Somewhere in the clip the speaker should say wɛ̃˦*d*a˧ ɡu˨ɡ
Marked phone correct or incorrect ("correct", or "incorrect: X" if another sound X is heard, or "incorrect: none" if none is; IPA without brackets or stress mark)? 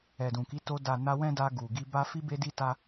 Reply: correct